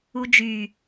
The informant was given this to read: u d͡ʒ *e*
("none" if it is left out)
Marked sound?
y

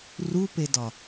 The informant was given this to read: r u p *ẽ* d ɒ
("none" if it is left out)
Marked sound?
e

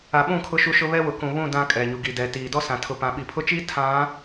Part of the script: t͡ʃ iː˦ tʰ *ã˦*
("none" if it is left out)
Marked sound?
ã˨˦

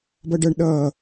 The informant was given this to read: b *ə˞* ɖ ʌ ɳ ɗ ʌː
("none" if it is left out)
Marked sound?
ʌ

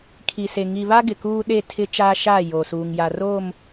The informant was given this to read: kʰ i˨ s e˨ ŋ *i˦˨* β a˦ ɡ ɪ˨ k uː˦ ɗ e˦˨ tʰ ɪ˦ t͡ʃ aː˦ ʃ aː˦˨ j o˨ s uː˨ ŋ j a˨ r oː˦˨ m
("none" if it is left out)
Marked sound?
i˨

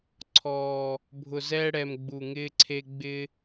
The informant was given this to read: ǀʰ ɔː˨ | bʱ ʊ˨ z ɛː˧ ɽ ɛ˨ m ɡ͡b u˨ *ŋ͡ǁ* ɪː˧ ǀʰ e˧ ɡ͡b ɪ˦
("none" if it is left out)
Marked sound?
ŋ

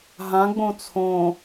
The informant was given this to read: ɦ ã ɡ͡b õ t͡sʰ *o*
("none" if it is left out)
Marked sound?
õ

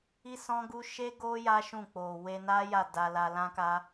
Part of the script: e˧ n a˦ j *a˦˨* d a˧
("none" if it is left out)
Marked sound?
a˦˨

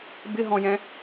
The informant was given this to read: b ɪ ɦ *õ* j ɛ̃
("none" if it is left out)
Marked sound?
ɔ̃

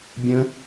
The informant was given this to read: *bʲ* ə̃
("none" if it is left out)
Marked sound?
bʲ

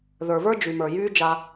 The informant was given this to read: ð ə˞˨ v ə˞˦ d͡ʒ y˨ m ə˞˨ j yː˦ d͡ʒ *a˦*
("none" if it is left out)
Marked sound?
a˦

